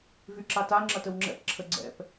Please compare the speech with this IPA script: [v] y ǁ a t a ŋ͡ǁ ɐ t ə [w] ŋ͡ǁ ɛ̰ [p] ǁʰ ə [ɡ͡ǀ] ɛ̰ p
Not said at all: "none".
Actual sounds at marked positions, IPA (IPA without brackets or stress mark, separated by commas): v, w, p, ɡ͡ǀ